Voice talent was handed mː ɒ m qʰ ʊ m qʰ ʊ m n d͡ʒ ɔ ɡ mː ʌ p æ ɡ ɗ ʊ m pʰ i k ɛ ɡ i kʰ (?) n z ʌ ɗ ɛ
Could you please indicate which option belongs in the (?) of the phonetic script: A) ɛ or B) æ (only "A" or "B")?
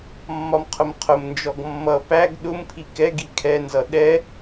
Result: A